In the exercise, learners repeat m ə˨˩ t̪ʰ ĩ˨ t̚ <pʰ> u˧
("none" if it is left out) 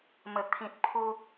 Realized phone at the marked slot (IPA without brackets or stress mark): pʰ